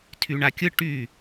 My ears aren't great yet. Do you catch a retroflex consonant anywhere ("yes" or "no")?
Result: yes